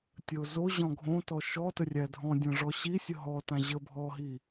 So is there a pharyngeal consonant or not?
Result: no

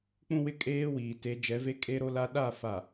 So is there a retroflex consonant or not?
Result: no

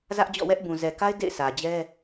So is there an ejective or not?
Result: no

